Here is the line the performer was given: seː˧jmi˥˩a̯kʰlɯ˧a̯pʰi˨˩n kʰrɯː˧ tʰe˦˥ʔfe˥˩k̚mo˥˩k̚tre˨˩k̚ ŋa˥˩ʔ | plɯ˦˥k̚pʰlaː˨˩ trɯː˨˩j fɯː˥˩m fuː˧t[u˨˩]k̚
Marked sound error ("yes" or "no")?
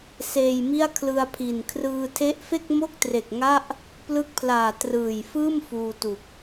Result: no